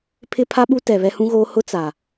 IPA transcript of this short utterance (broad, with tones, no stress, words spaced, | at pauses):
pʰɪ˦pʰa˦ɓu˦ tɛ˨ βɛ˦hũ˦ɣoː˦ hʊ˦ t͡sa˨